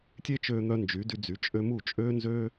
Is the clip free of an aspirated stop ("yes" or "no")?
yes